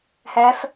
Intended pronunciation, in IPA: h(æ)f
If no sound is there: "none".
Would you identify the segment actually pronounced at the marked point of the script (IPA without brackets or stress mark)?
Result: æ